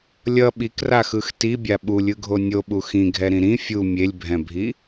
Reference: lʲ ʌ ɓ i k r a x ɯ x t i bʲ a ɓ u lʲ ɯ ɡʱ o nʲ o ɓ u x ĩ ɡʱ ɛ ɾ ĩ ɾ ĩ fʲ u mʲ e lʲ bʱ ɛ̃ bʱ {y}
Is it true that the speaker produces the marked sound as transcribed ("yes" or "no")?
no